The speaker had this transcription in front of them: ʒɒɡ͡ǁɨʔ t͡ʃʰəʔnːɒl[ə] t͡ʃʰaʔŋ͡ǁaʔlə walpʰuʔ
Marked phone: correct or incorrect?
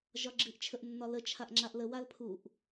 correct